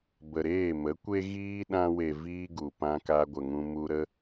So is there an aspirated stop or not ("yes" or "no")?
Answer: no